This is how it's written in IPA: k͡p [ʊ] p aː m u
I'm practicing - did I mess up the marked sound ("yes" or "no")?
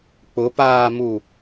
no